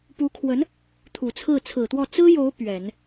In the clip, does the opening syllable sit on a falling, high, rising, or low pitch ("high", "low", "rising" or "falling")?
rising